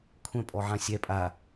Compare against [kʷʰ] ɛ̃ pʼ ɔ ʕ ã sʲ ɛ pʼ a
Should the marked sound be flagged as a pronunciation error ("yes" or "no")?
no